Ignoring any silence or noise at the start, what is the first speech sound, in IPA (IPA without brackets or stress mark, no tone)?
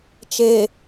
t͡ʃ